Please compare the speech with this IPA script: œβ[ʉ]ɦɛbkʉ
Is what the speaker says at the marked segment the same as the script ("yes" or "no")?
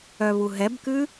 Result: no